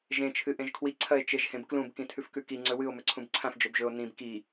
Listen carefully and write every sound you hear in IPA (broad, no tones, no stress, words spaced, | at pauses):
ʒẽ t͡ʃʰɨʔẽʒkʰwi ǀʰɐe̯t͡ʃeʒhẽbklũb kĩtʰʉfkʉki ŋ͡ǀɵwɨo̯ mɵǀʰũbǀʰãf d͡ʒɵbʒɵo̯ nĩb ki